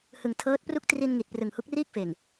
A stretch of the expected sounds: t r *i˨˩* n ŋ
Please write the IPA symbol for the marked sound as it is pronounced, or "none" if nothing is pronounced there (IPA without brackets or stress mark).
i˧